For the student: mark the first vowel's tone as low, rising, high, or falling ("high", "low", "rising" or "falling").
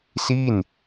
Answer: falling